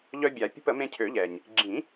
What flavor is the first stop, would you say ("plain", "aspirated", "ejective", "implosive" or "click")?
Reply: plain